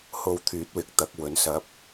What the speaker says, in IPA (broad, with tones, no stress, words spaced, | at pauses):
ho˧wt̪ʰyː˨˥t̚wɪ˨k̚t̪ɐ˨˥k̚ wɵ˨˥nsɐ˧p̚